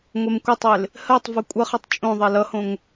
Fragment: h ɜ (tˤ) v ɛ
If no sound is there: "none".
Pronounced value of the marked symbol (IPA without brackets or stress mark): tˤ